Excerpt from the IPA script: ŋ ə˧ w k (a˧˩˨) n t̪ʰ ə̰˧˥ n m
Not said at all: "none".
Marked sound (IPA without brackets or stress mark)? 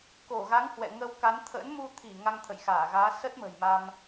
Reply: a˨˦